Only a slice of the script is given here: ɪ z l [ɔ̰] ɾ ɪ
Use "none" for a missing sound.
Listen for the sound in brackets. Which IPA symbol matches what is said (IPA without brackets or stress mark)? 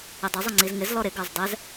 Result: ɔ